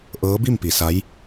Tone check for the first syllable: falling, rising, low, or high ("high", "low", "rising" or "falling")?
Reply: rising